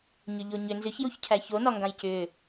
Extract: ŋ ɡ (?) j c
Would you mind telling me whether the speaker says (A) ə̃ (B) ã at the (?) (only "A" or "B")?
B